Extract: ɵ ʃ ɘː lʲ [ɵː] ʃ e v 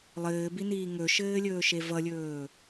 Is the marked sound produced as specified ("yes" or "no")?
yes